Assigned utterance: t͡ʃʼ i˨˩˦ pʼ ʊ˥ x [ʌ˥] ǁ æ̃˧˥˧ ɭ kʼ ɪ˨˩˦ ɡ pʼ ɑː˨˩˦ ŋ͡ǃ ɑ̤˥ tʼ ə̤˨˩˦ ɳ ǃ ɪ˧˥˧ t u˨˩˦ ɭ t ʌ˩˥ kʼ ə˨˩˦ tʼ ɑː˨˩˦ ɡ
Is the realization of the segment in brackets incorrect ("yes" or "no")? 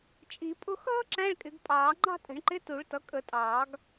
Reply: yes